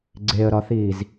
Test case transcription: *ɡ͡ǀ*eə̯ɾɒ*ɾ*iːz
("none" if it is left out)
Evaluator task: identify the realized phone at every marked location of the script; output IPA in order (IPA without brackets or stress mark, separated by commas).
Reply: ɡ͡ǀ, θ